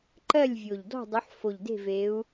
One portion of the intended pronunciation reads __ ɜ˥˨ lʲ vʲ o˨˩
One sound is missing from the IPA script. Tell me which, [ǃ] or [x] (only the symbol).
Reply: ǃ